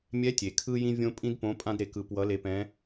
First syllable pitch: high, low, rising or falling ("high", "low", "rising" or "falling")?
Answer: rising